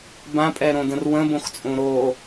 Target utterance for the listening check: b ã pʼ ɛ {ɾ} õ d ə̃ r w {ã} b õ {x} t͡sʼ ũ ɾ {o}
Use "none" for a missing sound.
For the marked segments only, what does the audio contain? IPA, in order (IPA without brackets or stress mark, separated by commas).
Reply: ɾ, ə̃, x, o